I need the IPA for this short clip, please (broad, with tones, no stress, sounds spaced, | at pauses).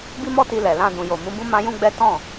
b i˦ m ɔ˦ t i˧ l ɛ˨ l ã˧ d ũ˨ j o˨ m ũ˨˦ b ũ˦ m ã˦ j ũ˦ ɡ͡b ɛ˦ t ɔ̃˦˨